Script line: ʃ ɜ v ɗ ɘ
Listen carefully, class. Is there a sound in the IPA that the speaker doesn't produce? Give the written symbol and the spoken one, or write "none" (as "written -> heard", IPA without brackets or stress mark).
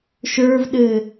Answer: ɜ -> ə˞